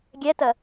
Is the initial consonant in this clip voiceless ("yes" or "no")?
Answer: no